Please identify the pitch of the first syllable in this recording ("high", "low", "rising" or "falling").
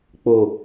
low